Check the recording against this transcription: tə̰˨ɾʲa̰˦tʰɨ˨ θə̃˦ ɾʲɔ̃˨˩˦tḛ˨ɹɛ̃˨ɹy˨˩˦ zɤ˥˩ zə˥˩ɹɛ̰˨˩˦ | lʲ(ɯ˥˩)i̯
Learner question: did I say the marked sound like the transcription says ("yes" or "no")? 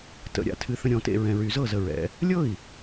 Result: no